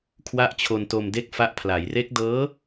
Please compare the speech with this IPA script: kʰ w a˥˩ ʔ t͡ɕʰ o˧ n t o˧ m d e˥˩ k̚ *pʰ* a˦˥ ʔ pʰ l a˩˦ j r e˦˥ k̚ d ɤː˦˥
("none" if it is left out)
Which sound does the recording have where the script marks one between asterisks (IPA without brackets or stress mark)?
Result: f